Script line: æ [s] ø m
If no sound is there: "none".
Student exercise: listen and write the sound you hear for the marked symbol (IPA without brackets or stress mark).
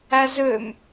z